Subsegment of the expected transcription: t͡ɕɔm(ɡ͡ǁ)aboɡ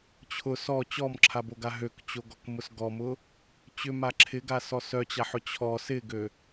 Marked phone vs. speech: incorrect: ǁʰ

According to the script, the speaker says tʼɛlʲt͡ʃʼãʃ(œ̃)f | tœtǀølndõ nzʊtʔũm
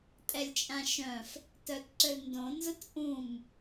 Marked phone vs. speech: correct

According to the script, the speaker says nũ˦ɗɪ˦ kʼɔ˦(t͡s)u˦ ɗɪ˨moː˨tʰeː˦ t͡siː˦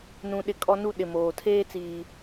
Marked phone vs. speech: incorrect: n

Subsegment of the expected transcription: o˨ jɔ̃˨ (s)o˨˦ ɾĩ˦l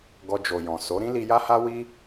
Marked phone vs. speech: correct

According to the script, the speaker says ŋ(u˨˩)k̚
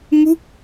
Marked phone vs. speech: incorrect: u˥˩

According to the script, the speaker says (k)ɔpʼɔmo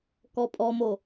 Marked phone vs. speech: correct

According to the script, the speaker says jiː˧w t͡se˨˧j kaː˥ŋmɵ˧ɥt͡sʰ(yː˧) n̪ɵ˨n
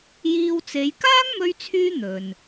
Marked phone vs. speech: correct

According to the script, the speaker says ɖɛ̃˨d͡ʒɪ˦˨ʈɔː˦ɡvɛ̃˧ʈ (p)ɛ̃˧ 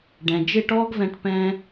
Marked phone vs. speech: correct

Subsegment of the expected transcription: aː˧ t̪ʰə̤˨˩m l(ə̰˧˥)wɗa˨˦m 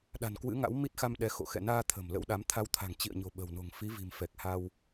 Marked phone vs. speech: correct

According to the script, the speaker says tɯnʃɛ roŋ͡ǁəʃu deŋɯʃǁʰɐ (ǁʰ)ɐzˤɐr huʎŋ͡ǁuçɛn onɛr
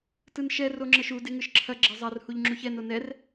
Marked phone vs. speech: incorrect: ɡ͡ǁ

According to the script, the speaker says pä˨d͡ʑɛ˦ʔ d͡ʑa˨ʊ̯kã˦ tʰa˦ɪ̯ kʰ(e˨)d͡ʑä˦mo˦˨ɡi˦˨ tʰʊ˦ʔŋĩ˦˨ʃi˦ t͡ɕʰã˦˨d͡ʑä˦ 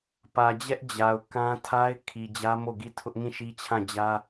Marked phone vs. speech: incorrect: i˨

